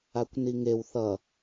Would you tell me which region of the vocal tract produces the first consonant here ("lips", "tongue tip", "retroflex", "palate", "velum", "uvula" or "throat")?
velum